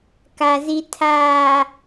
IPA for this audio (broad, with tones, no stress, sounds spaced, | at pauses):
k a˨ z i˨ tʰ aː˨